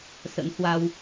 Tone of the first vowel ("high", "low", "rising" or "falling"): rising